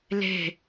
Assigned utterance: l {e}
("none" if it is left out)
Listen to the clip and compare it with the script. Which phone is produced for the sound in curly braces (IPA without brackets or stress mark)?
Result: e̤